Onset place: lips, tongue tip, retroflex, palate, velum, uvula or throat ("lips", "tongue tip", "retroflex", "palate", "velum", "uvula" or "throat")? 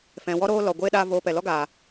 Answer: lips